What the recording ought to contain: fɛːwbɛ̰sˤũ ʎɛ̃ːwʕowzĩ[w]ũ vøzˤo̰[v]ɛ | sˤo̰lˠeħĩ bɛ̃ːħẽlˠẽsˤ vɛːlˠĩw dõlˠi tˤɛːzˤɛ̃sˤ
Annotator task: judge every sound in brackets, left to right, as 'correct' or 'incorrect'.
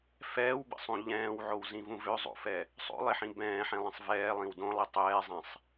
incorrect: v, incorrect: f

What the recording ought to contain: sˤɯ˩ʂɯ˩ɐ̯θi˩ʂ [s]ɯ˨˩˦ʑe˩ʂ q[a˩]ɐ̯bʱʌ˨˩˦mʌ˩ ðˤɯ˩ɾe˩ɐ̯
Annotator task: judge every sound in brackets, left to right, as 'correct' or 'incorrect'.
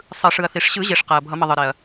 incorrect: ɕ, correct

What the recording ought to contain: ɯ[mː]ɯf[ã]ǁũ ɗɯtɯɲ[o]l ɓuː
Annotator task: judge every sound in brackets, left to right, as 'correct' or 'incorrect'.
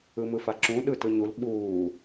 incorrect: m, incorrect: a, incorrect: u

